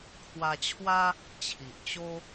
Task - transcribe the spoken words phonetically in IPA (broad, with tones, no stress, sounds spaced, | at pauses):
kʰ w a˧ t͡ɕʰ w a˦ | t͡ɕʰ i˨ ʔ t͡ɕ o˦